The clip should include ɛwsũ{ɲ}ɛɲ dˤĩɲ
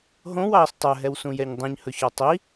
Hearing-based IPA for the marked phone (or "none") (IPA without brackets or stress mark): j